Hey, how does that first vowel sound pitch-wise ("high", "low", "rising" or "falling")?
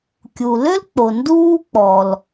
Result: low